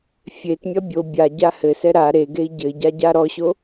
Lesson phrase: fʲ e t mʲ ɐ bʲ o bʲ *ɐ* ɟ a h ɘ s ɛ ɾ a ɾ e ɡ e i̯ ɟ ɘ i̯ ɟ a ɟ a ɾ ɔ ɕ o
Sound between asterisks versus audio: incorrect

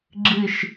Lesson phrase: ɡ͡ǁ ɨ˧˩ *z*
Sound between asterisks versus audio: incorrect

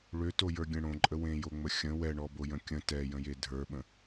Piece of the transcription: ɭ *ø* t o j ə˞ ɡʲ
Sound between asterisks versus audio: correct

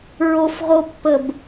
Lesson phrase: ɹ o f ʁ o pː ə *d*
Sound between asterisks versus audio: incorrect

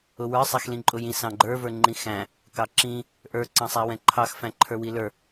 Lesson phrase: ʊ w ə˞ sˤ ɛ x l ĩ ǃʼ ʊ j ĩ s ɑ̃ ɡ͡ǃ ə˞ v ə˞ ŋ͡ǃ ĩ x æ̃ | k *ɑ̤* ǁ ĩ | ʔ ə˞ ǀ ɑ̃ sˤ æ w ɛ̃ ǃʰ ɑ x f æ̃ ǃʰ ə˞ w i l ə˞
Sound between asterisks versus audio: incorrect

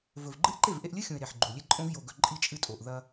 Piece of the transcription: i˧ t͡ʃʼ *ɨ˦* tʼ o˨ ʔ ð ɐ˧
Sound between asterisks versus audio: incorrect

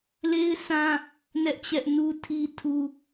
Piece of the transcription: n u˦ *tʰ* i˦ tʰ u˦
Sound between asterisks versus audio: correct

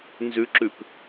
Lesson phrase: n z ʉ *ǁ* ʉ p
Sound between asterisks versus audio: correct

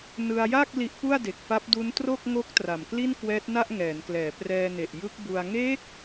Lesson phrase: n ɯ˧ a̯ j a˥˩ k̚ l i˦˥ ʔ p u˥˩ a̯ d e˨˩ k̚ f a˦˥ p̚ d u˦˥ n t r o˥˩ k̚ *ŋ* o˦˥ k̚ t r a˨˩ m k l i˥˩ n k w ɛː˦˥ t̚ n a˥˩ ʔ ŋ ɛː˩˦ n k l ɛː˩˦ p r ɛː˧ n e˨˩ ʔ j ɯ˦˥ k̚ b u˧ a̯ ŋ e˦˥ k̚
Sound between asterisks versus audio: correct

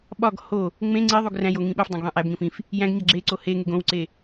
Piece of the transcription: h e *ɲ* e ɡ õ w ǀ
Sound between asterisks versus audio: incorrect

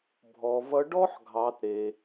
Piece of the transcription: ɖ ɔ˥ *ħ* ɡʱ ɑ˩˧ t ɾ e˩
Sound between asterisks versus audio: correct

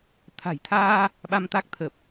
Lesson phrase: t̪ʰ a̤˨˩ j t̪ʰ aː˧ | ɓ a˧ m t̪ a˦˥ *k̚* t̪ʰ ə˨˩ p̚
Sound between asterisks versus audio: correct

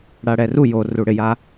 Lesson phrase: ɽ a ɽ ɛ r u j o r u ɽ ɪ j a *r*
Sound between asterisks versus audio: incorrect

